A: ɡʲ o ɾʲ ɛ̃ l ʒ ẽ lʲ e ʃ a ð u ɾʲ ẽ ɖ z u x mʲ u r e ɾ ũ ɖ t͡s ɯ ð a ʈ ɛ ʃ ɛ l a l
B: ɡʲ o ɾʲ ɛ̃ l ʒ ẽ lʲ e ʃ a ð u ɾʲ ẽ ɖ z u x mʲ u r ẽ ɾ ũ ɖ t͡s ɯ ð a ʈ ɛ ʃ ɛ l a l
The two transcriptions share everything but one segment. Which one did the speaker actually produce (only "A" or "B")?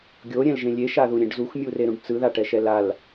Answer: A